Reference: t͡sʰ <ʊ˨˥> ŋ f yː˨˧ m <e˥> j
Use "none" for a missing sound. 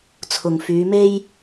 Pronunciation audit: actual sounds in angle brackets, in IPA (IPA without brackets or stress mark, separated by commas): ʊ˨, e˥